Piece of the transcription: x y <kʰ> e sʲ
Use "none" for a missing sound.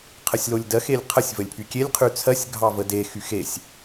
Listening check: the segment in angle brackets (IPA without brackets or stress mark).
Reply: x